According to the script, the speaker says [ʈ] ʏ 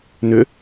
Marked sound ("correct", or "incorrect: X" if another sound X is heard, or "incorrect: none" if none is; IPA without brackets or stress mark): incorrect: n